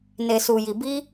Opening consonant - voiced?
yes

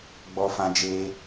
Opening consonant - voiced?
yes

